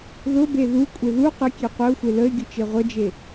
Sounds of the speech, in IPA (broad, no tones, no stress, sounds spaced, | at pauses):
ð ʊ b e ð u kʷʼ ɪ ð u q ɪ kʲ e qʷ ə ʊ̯ xʷ e l ə ɪ̯ ɡʲ ʊ t͡ʃ e ʁʷ ə d͡ʒ e